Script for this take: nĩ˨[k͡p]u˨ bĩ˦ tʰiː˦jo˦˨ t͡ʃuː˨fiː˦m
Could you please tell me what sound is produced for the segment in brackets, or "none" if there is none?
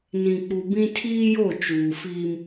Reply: k͡p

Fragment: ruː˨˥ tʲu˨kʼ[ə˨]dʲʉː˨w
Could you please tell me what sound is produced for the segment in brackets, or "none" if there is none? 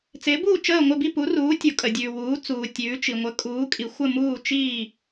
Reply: ə˨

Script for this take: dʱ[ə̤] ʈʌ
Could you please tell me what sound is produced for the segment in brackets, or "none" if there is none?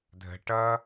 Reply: ə̤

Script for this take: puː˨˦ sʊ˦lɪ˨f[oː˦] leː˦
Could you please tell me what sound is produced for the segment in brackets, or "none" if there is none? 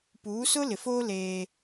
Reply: oː˦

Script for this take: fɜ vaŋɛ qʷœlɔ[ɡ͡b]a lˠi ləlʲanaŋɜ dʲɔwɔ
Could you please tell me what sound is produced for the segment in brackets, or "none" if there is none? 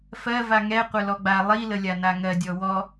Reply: ɡ͡b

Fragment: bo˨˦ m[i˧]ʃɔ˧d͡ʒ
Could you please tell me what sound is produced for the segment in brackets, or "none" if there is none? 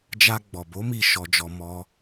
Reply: i˦˨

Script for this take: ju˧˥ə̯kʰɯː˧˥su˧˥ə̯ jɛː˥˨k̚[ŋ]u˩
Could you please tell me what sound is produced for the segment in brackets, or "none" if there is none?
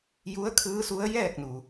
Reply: n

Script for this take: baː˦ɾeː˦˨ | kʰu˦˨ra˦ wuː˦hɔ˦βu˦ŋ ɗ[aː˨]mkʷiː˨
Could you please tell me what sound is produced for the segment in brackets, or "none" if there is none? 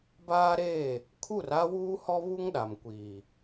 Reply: a˨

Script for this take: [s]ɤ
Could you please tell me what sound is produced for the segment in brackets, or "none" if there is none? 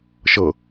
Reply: ʃ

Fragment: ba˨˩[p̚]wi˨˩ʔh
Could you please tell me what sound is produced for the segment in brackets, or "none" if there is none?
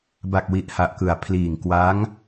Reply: k̚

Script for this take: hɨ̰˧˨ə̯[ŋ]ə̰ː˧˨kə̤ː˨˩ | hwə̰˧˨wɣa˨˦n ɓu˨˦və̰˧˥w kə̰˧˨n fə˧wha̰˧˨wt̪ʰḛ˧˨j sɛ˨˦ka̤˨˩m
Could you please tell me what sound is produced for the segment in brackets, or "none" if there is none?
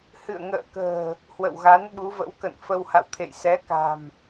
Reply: ŋ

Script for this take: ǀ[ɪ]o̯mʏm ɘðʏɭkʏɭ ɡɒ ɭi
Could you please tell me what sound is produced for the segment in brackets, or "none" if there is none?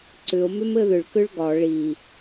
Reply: ʏ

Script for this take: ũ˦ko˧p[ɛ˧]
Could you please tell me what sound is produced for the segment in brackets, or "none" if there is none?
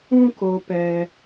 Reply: ɛ˧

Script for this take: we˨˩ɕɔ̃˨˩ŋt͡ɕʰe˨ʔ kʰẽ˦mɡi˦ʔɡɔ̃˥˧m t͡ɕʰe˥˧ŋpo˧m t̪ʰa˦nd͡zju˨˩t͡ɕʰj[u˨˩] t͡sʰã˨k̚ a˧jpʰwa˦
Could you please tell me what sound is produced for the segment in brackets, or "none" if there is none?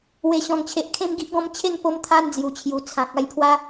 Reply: u˨˩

